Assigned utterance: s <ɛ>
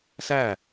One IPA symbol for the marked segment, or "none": æ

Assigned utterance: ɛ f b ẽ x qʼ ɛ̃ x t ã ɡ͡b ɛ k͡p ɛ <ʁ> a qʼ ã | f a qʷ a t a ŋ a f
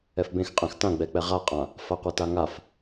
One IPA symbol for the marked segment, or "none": ʁ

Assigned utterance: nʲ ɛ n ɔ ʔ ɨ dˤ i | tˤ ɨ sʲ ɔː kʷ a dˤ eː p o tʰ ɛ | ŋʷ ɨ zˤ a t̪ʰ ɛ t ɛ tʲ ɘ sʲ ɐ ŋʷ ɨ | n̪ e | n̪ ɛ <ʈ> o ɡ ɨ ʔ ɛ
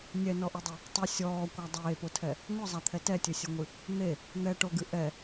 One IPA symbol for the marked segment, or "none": ʈ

